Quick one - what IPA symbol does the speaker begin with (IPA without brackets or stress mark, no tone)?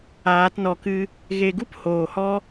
aː